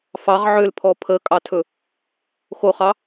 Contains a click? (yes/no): no